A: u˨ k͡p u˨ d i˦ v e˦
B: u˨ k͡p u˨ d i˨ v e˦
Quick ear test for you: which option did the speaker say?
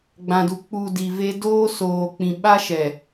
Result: B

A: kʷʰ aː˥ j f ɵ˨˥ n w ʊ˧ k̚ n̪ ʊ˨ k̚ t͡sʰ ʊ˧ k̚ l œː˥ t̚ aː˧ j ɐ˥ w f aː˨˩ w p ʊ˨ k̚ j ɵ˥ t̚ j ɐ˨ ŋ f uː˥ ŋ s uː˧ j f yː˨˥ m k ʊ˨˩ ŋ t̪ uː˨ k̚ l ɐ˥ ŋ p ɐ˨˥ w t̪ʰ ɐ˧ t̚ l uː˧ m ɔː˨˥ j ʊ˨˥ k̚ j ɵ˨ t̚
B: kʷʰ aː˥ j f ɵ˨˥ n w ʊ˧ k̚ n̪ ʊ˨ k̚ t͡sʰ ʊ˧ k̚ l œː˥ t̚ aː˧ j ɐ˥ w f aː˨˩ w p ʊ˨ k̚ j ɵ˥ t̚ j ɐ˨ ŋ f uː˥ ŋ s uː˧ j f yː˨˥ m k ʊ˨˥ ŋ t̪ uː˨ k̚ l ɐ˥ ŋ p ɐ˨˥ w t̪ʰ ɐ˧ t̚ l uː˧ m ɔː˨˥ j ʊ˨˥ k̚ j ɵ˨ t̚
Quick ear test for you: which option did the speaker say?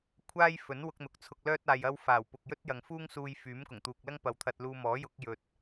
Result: A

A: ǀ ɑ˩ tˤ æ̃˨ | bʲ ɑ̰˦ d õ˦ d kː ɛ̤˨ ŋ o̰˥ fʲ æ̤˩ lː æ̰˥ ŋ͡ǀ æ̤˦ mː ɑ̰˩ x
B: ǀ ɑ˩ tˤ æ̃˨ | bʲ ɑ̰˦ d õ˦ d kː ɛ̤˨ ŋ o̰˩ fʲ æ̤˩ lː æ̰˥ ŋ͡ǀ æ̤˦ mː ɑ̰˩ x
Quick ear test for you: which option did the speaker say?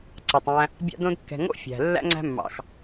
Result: A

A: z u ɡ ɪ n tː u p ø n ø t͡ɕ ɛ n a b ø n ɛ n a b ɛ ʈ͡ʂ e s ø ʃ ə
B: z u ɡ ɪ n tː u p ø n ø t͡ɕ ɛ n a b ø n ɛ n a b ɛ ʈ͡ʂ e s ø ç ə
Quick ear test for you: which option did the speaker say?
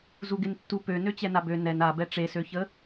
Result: B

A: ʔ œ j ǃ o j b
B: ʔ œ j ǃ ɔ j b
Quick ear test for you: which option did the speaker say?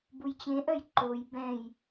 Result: A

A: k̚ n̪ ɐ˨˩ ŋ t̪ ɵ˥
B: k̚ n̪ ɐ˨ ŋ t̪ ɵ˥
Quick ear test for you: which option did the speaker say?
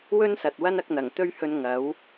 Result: A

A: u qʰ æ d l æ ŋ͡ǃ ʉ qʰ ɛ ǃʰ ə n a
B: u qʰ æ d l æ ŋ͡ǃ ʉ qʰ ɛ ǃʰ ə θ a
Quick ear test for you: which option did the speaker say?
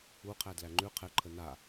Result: A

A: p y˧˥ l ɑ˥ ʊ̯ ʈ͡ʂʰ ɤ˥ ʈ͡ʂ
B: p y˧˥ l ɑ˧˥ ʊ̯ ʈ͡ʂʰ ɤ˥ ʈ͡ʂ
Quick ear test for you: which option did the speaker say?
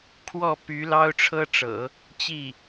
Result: A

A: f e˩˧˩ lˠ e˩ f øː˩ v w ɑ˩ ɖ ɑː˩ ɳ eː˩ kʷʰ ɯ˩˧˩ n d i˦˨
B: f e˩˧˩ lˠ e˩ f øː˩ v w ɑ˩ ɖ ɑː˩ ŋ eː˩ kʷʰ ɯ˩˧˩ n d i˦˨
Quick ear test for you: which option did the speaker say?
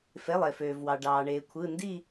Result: A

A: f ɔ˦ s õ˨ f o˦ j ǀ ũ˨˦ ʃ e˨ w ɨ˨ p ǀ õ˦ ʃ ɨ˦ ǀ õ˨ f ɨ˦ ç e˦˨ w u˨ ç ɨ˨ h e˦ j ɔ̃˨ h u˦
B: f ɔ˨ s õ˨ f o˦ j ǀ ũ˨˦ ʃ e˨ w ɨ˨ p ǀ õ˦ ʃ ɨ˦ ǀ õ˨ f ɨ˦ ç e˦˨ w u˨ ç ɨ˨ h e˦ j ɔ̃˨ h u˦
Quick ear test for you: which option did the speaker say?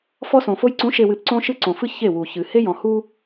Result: A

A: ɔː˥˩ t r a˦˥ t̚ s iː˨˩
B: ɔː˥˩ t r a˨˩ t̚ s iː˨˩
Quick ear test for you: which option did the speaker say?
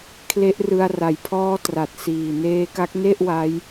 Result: B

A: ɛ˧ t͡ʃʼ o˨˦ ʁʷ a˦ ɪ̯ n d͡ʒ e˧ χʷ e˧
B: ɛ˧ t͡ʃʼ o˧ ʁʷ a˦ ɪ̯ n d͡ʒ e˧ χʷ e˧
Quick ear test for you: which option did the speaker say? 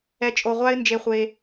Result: B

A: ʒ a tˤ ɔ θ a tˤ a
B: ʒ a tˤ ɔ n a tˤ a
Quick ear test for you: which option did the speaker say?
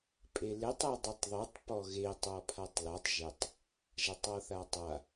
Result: A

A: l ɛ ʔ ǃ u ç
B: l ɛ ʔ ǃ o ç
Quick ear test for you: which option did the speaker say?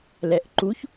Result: A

